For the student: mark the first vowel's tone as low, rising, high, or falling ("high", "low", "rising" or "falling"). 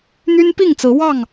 high